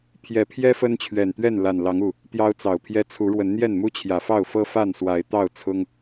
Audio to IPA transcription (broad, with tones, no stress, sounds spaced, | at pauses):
pʰ j ɛ˨˩ pʰ j ɛ˦ f ə˦ n t͡ɕʰ ɥ ɛ˨˩ n t̪ ɥ ɛ˥˨ n l a˨˩ n l ɑ˨˦ ŋ u˨˩ | t̪ j ɑ˦ ʊ̯ t͡s ɑ˨˩ ʊ̯ pʰ j ɛ˦ t͡sʰ u˨˦ ɻ w ə˨˦ n n̪ j ɛ˥˨ n m u˦ t͡ɕʰ j ä˨˩ f ɑ˥˨ ʊ̯ f ɤ˦ f a˥˨ n s w a˨˦ ɪ̯ t̪ ɑ˥˨ ʊ̯ t͡sʰ ʊ˦ ŋ